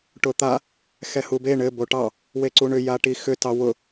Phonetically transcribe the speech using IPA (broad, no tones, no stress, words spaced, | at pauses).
ʈʊt̪a | xɛhube ɳɘ boʈɑ | weǀuɳʏ jaʈixʏ tɑwʊ